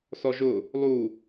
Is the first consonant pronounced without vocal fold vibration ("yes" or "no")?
yes